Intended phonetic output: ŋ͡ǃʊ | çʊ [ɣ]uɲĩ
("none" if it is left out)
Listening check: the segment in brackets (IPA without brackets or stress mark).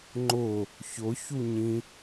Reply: ç